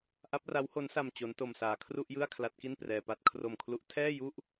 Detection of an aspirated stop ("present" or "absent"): present